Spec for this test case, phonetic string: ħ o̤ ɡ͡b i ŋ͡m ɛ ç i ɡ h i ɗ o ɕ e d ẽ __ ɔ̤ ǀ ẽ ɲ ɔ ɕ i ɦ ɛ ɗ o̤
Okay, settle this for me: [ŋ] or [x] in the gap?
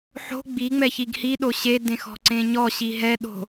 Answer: x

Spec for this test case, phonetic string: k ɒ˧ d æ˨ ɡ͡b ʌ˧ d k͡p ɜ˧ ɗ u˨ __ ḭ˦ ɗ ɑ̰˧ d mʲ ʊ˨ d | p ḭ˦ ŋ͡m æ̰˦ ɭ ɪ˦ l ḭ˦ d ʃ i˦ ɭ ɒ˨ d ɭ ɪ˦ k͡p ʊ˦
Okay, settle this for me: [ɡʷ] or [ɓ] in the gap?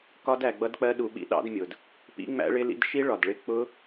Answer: ɓ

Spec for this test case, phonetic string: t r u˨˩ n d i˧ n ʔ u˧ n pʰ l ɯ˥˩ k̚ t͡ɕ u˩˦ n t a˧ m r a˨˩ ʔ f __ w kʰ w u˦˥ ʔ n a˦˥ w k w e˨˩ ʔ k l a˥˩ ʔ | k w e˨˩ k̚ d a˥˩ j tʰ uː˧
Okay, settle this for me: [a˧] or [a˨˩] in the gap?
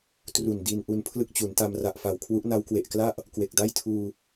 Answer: a˨˩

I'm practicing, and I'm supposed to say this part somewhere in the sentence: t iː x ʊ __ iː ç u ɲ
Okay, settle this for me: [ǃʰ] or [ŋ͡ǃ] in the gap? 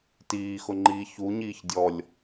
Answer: ŋ͡ǃ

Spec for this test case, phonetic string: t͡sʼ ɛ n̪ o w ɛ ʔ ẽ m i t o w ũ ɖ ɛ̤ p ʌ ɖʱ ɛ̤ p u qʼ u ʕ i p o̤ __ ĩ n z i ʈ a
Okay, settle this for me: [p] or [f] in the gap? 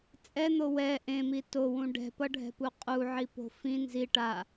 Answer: f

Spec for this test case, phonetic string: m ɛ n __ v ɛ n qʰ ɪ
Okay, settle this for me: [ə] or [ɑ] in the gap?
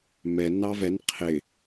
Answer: ɑ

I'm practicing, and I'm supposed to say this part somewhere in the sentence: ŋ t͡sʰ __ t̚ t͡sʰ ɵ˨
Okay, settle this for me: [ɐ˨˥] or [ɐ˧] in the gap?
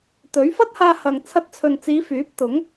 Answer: ɐ˧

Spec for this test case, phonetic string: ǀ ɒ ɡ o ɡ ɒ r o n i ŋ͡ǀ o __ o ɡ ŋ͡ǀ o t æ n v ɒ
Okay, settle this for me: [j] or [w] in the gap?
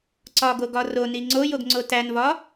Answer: j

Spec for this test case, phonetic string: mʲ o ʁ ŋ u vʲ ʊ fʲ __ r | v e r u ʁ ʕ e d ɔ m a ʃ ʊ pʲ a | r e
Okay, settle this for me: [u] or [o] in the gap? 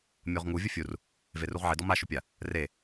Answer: u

